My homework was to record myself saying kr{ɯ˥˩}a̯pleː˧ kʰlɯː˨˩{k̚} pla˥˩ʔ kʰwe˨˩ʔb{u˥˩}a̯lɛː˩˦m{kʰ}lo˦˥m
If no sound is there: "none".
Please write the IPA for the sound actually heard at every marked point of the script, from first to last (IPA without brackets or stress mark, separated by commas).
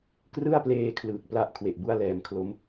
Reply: ɯ˥˩, k̚, u˥˩, kʰ